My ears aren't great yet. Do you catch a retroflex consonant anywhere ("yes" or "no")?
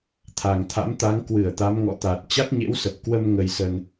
no